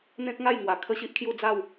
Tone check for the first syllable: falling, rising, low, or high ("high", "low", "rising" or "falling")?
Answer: high